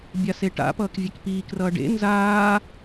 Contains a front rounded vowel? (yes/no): no